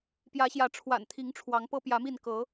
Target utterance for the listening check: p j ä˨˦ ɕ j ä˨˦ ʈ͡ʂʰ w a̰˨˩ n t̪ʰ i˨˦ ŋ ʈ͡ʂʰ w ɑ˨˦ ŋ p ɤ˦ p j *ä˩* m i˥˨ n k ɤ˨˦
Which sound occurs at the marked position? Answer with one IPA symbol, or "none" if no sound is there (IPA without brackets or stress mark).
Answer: ä˨˦